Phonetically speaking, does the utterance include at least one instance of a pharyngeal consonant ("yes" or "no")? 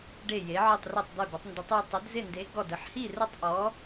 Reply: yes